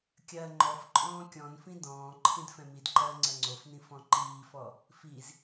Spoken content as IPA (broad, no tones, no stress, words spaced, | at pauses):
kʲɐːŋ͡ǃɔfǃʼɔ̃ː kʲɔ̃nfĩ dɔ̃ː ǃʰĩdfɛ̃midǃɐː ŋ͡ǀɐŋ͡ǀofnĩ fɔ̃ǃiːfɔ | fiz